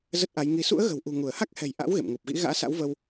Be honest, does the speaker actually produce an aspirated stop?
no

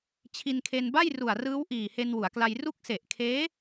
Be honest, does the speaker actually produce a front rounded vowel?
no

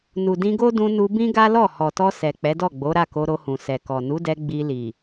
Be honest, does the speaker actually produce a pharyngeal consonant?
no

